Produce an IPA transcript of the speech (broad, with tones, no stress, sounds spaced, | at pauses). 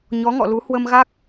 ɲ ɔ˨˦ ŋ ɔ̰˧˨ l u˨˦ h w ə˧ m ɣ a˦˥ k̚